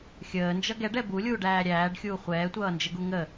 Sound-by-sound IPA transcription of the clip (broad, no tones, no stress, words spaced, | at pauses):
xʲəːnd͡ʒʌ ɡɛɖɛ bulʲuːɖæː ɾʲæːɖxʲuː χʷɛːtʷʌːnd͡ʒəɡu ŋə